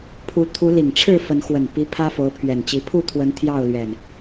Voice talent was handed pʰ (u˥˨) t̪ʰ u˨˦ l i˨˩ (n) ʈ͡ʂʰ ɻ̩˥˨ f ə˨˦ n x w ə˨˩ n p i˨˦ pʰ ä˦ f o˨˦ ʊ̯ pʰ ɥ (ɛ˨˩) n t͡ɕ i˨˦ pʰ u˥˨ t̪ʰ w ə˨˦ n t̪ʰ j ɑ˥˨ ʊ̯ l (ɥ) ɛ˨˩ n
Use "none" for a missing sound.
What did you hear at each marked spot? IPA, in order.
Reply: u˨˦, ŋ, ɛ˨˩, ɥ

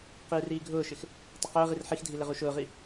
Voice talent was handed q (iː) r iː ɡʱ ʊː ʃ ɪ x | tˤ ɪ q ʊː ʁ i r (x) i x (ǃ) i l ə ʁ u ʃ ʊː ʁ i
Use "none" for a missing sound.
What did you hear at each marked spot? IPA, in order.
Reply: iː, ħ, dʱ

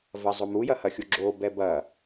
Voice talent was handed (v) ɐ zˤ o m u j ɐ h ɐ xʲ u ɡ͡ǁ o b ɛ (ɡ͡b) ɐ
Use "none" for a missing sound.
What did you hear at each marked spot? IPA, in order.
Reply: v, b

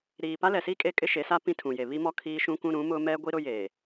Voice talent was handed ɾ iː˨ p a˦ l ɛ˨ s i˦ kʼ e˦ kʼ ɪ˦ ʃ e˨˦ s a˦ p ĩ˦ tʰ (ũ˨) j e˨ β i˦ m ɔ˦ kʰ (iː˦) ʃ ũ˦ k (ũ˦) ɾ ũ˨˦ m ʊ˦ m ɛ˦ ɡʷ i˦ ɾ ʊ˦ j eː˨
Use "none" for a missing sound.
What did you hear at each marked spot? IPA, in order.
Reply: ũ˨, iː˦, ũ˦

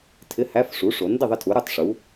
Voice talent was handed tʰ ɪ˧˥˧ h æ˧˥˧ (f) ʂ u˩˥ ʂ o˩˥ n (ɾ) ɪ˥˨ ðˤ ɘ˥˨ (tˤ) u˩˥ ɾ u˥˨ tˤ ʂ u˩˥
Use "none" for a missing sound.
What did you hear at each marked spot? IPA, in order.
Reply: f, d, tʰ

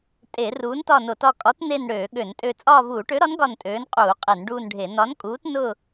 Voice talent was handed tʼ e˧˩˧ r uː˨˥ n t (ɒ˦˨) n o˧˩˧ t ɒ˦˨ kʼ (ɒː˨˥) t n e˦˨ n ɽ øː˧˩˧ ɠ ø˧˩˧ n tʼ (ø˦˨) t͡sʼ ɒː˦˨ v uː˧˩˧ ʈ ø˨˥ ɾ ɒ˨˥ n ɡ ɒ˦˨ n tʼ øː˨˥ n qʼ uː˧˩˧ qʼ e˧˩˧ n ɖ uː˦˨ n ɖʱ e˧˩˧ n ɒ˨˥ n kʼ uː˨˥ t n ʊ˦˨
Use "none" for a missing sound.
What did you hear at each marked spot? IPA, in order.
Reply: ɒ˦˨, ɒ˨˥, ø˦˨

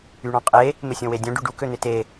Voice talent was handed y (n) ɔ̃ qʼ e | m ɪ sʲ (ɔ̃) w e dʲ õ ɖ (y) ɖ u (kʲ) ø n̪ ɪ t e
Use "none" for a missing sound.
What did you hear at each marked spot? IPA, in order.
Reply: ɳ, õ, y, k

